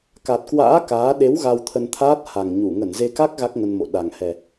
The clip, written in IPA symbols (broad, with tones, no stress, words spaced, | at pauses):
ka˨˩t̚kwa̰ː˧˥ kaː˨˦ ɗe˨˦w ɣa˧wt̪ʰə˧nt̪ʰaː˦˥t̚ ha˨˩ŋɲu˧˩ ŋə˧˩nze˧ka˦˥k̚ ɣa˦˥k̚ŋə˧nmo̰˧˨ ɗa˨˩ŋ hɛ˨˩